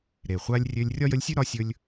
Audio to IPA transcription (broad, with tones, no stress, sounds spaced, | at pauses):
ɾ e˩ χʷ a˧ lʲ rʲ ø˧ lʲ rʲ ɒ˥ j ə˧˥ lʲ sʲ ʉ˥ ɾ ɒ˧ sʲ ɵ˧ lʲ